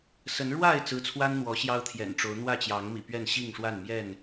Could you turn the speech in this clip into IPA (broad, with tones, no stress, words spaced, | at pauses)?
sə˨˦n ɻwa˥˨ɪ̯ t͡sɹ̩˨˦t͡sʰwa˦n n̪wɔ˨˦ɕjɑ˦ʊ̯t̪ʰjɛ̰˨˩nʈ͡ʂo˨˦ʊ̯ n̪wä˥˨t͡ɕjɑ˨˦ŋ mḭ˨˩pɥɛ˥˨n ɕi˥˨ŋʂwa˥˨n mjɛ˥˨n